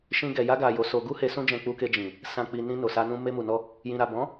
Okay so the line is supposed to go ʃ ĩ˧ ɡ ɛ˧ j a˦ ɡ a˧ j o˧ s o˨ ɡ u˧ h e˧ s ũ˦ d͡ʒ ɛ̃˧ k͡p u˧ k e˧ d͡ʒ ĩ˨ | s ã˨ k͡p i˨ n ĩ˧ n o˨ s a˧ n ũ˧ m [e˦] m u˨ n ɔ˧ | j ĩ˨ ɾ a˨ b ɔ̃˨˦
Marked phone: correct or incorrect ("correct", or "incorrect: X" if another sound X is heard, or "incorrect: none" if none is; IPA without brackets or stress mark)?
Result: incorrect: e˧